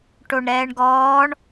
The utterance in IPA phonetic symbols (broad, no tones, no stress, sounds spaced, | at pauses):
ʈ o ɳ ɾ ɛː ɳ ɡ ɔː ɳ